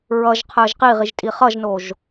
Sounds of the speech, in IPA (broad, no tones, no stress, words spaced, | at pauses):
ɹʌʒqʰəːʒ qiʁiʒtʼi χʌʒnoʒ